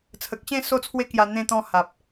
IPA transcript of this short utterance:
t͡sʰ ə˨ k̚ ɕ ẽ˥˧ s o˥˧ t͡sʰ w e˦ k j a˧ n̪ ẽ˧ t̪ ɔ̃˧ h a˨ p̚

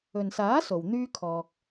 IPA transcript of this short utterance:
ɵ˨ n s aː˨˥ s o˨ w n̪ yː˥ kʰ ɔː˧ k̚

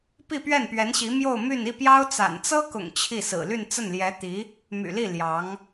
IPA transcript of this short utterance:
p i˥˧ p ɥ ɛ˥˩ n p ɥ ɛ˧˥ n ɕ i˧˥ m j o˥˧ ʊ̯ m y˥˧ n i˥˩ p j ɑ˥ ʊ̯ t͡s a̰˨˩ n t͡s ɤ˥ k ʊ̰˨˩ ŋ t͡ɕʰ i˥˩ s ɹ̩˨˩ l y˥˧ n t͡s ə˥˩ n l j ɛ˧˥ t̪ i˧˥ | m y̰˨˩ l i˥˩ l j ɑ˧˥ ŋ

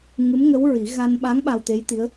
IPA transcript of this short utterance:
ŋ ɨ˧˥ m ŋ ə˧˥ w ɹ i˨˩˦ ɣ a˧ n ɓ a˧˥ ŋ ɓ a˧ w t̪ e˧˥ j t̪ i˧˥ ə̯

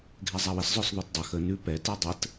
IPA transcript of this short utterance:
ɡʱ ɛ zˤ a w ə s zˤ œ s ðˤ o t dˤ a x ə n ʉ p ɛ t ɛ dˤ ə t

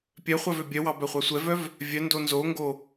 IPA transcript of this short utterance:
pʲ œ χʷ ɑ v ø bʲ œ w ɑ b œ χʷ ɑ sʷ ɛ v œ v | vʲ œ n d o n z o ŋ ɡ o

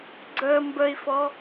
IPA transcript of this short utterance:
ɡ͡ǀ ə m b ə i̯ f ɔ

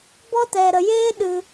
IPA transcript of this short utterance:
b ɔ˦ t ɛ˨ ɾ ə˨ j eː˦ ɗ ɨ˧

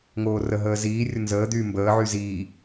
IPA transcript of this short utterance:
ŋ oː r ə ɦ əː z iː rʲ o n z əː d̪ yː m b əː ʕ y z iː

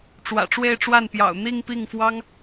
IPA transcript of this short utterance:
ʈ͡ʂ w ä̰˨˩ ʈ͡ʂ w e˥˧ ɪ̯ ʈ͡ʂ w a˥˩ n p j ɑ̰˨˩ ʊ̯ n̪ i˥˧ ŋ p i˥˩ ŋ f w ɑ˥ ŋ

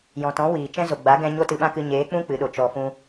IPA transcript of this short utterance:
j ɔ̃˨ t ɔ̃˨˦ w iː˨ t͡ʃ ɛ̃˦ z o˨ ɡ͡b a˨˦ ɡ ɛ̃˧ ɲ o˦ t ɨ˧ ɓ ã˦ k ɨ˧ ɲ eː˨˦ k͡p ũ˦ k͡p ɨ˨˦ ɗ o˨ t͡ʃ ɔ˧ f ũ˦

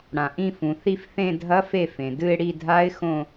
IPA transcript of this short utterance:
ɽ ã˩ ʔ ĩ˦˨ f ũ˩ θ i˦˨ f θ ẽ˦˨ dʱ ɐ˦˥ f e˦˨ f ẽ˩ d ɨ˦˨ ɪ̯ ɽ i˦˨ dʱ a˦˥ ɪ̯ x õ˦˨

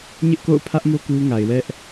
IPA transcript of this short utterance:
ɲ ɪ˦ ʔ k o̰˦˨ ʊ̯ pʰ ä˦ ʔ m o˦ k u˦ ŋ a˨ ɪ̯ w ɛ˦ ʔ

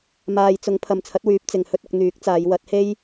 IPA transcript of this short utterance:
m aː˨ j t͡s ʊ˨˧ ŋ pʰ ɐ˨ m t͡sʰ ɐ˨˥ t̚ w yː˨˥ p̚ t͡s ɪ˨ ŋ h ɵ˥ t̚ ʊ˧ k̚ n̪ yː˨˥ k̚ t͡s aː˨˧ j w ɐ˨˥ t̚ h e˥ j

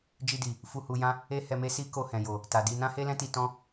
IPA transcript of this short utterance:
d͡ʒ i˧ d i˨ | f u˧ h u˧ j ã˦ | e˦ h ɛ˧ m e˦ s i˦ k o˧ h ɛ̃˨ j o˨ | t a˨ d i˧ n ã˦ h e˦ l ɛ̃˦ t i˧ t ɔ̃˦

